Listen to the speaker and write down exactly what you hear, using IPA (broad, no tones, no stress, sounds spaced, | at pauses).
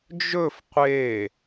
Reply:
d͡ʒ ɵ f qʷ e